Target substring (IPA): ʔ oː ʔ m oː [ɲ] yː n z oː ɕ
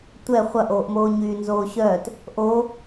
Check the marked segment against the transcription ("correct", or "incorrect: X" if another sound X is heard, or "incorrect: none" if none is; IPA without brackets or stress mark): correct